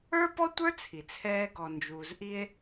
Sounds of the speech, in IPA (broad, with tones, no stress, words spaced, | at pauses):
ə˞˥pɔ˥tʷə˞˥ t͡sʰi˩t͡sʰɛː˧ ɡɔ˩nd͡ʒuː˩zʔi˧e̯